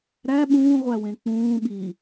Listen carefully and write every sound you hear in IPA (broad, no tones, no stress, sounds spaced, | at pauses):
ɾ æ ɓ ũː ʁʷ æ w ẽ k͡p ũː ɓ i